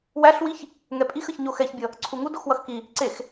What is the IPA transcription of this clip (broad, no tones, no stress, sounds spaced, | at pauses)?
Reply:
w æ ɬ w i ç | ŋ ɛ pʼ i x ə ç ɲ o x ɛ ç bʲ ʌ | ǀʰ u ŋ u d o x w ʌ x k i | ǀ e x